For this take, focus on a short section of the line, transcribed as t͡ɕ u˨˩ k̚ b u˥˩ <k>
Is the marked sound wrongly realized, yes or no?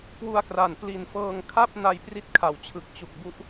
yes